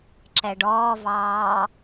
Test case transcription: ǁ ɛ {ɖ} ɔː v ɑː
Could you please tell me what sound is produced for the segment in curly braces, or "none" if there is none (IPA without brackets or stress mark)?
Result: ɖ